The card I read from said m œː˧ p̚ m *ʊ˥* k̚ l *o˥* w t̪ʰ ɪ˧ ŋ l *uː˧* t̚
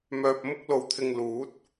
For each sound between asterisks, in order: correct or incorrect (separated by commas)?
correct, incorrect, incorrect